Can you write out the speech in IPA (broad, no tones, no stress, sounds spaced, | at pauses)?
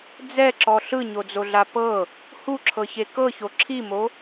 d͡z ɛ ǁ ɔ ɬ ɯ ɲ o d͡z o ɮ a p ɤ | h u ǁʰ ɤ ç e k ɤ ç o ǁʰ i m o